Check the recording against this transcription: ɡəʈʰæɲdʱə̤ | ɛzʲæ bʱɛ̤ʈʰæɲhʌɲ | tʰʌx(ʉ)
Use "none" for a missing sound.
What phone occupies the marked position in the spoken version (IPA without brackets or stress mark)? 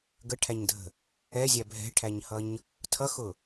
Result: ʊ